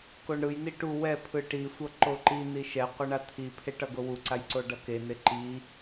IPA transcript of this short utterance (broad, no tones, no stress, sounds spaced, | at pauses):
k o ɳ ɾ ɯ j n i ʈ u w ɛ pʰ ɯ ʈ i sʷ ʌ ǃ o ǃ i n i ʃ ɛ qʷ ʌ ɳ a t̪ʰ i pʰ e ʈ ʌ ɡ o w u ǀ a j ǀ o ɖ ʌ k e n e ǃ i